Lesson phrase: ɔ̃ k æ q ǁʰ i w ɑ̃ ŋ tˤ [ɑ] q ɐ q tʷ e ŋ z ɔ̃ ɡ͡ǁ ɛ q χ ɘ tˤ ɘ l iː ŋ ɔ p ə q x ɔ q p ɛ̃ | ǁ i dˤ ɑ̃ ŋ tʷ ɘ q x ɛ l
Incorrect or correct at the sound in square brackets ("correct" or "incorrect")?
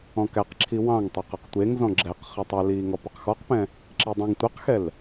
correct